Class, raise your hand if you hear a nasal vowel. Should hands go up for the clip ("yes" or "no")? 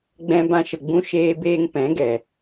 yes